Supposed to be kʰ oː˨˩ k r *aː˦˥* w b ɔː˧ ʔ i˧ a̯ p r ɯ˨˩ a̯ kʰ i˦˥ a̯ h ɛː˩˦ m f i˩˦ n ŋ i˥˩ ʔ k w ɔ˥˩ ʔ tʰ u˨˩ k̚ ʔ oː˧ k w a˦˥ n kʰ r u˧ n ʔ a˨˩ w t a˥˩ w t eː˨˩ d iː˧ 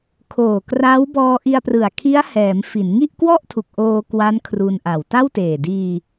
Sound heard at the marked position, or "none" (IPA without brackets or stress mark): aː˦˥